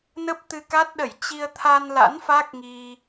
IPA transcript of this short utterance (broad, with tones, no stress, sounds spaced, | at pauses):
n ə˦˥ p̚ t̪ ɨ˧ k a˦˥ t̚ ɗ ə˧˩ j t͡ɕ i˧ ə̯ t̪ʰ a˧ n l a̰˧˥ n f a˦˥ k̚ ŋ i˧